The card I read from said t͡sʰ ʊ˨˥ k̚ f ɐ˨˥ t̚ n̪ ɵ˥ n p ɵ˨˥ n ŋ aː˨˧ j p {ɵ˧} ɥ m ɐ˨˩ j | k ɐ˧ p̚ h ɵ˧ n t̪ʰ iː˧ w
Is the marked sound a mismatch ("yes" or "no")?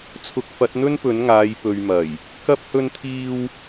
yes